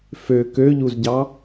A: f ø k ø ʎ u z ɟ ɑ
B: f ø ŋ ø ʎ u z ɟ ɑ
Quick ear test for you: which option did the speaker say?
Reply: A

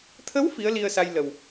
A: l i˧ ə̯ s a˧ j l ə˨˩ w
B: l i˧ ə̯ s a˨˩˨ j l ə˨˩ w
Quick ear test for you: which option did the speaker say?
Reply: A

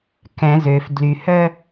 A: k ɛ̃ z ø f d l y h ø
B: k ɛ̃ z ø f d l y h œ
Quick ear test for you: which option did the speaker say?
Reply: B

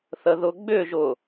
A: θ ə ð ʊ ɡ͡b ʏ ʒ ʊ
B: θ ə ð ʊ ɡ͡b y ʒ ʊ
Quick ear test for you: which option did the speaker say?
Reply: A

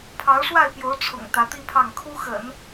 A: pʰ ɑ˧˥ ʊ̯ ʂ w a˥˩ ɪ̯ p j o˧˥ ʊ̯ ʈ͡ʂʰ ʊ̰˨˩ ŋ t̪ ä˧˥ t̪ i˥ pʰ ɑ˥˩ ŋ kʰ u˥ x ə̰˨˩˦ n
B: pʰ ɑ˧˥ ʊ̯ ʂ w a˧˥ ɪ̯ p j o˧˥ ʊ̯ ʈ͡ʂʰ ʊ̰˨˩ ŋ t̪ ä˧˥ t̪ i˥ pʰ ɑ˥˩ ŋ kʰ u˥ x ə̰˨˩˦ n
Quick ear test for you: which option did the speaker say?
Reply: A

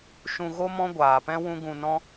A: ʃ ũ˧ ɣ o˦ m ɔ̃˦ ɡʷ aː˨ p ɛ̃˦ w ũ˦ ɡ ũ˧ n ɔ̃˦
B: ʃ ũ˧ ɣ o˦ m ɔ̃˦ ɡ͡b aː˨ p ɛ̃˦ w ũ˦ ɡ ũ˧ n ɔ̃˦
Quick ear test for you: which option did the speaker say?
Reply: A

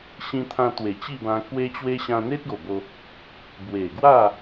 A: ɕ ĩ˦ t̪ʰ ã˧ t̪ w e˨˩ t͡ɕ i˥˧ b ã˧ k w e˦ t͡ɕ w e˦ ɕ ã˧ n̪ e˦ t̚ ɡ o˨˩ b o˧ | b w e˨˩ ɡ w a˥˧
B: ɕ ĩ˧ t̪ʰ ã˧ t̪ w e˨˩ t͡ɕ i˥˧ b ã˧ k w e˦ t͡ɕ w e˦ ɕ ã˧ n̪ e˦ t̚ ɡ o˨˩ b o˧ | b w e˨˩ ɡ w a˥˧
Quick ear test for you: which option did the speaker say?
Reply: B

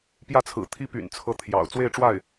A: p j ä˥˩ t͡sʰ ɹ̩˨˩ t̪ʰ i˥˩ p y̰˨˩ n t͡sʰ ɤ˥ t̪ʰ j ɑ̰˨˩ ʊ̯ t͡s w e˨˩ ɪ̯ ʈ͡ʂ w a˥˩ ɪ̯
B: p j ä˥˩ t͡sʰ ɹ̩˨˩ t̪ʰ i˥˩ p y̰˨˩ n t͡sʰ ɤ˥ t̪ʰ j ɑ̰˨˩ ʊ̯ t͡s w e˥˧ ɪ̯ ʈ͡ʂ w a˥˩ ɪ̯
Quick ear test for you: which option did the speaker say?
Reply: B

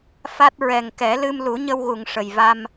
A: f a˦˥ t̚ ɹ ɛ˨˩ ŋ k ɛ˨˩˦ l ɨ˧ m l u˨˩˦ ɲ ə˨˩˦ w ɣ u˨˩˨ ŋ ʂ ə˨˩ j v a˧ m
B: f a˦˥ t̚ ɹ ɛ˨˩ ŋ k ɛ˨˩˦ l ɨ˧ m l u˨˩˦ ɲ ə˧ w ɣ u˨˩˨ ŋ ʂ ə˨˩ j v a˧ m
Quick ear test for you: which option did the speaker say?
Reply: B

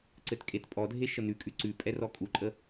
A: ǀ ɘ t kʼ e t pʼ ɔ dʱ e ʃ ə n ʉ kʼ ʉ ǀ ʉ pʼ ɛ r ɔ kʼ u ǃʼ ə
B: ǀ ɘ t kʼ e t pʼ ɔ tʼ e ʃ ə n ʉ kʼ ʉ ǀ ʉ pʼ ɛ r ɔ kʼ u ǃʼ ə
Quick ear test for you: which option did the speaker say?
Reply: A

